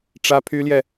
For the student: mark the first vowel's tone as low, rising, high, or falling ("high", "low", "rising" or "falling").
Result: high